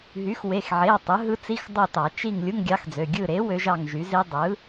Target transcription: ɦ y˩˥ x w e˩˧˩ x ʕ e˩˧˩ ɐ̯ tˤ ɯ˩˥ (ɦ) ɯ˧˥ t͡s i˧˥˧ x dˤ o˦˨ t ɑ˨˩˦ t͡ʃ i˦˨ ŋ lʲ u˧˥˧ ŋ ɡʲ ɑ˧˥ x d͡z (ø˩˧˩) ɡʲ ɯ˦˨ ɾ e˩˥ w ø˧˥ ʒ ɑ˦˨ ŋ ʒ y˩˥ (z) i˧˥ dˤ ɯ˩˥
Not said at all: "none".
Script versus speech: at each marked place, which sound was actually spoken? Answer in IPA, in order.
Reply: ɦ, ø˩˧˩, z

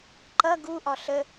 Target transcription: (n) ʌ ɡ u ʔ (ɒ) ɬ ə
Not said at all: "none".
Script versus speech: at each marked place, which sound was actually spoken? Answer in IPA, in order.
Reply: ǃ, ɒ

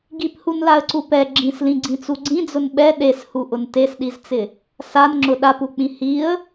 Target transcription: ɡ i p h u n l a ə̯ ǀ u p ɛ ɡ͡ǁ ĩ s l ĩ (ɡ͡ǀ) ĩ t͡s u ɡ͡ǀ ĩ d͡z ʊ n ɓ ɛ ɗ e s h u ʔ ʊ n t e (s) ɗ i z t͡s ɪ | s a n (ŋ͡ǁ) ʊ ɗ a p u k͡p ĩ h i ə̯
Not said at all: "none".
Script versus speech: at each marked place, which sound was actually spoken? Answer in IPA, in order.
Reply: ɡ͡ǀ, s, ŋ͡ǁ

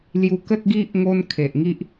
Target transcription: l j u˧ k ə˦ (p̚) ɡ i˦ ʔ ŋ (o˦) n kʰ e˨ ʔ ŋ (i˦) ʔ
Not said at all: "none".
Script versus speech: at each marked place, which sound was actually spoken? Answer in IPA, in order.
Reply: t̚, o˦, i˦

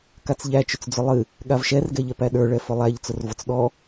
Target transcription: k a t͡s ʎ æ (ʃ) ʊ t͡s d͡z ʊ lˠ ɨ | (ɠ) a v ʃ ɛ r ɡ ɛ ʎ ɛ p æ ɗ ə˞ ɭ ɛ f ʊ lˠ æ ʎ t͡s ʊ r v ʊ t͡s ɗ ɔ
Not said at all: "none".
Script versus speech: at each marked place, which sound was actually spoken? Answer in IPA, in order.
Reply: t͡ʃ, ɠ

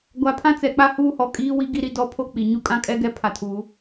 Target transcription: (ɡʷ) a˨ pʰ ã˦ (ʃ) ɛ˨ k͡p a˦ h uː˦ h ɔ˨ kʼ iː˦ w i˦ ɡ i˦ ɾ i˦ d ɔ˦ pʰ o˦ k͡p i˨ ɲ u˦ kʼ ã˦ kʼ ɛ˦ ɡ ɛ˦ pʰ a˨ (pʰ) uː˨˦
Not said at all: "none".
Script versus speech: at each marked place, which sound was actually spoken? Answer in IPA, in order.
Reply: ɡʷ, t͡s, tʰ

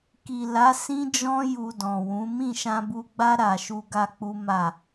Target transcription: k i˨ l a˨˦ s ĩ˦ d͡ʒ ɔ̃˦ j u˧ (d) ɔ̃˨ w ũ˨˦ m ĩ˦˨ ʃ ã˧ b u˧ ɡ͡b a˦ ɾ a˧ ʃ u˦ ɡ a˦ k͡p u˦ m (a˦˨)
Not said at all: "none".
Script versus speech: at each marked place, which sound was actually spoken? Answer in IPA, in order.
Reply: d, a˦˨

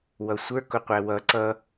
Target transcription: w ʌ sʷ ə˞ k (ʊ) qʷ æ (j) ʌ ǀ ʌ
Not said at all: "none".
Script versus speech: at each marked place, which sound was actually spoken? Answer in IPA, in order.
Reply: ʊ, w

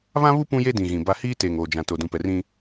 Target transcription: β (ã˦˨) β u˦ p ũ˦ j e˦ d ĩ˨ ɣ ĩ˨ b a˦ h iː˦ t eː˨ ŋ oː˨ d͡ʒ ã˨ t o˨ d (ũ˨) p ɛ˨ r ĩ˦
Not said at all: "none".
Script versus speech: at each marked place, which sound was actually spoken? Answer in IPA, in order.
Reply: ã˦, ũ˨

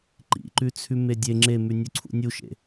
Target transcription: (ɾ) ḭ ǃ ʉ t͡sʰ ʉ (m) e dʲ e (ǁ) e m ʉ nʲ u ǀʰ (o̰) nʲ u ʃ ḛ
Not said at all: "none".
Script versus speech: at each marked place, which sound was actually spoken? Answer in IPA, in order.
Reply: ǃ, m, ŋ͡ǁ, ṵ

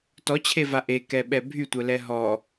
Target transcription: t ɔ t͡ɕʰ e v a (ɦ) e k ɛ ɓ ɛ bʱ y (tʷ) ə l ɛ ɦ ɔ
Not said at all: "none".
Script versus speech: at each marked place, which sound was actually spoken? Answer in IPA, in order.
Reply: ʔ, tʷ

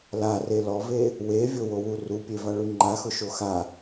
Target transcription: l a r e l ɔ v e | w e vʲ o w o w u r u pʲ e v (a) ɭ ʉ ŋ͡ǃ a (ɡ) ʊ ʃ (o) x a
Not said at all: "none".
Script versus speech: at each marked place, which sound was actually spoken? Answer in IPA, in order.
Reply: a, x, o

